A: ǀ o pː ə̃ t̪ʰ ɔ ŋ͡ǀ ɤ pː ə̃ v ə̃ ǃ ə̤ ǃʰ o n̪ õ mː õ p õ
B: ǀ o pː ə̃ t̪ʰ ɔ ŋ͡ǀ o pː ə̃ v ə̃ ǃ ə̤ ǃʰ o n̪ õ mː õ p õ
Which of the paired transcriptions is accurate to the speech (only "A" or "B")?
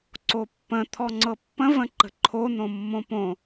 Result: A